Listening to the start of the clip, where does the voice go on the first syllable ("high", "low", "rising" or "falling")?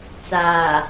low